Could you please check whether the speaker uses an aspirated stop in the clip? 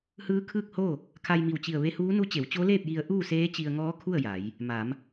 yes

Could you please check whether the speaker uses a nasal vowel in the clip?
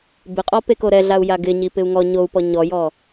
no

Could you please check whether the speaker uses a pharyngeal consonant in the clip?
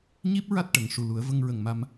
no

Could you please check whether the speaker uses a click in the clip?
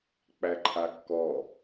yes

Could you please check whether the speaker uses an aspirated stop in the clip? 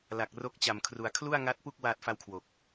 yes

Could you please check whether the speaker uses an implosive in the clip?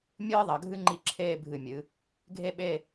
yes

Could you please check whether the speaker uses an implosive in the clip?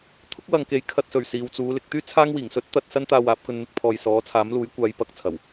no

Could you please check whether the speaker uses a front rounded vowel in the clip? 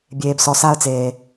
no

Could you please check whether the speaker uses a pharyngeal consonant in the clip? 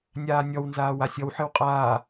yes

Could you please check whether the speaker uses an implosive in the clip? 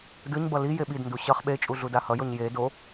yes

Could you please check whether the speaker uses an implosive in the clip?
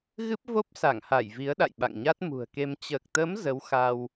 yes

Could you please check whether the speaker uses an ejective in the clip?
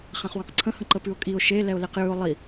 yes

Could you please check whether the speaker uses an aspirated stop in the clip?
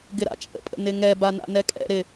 no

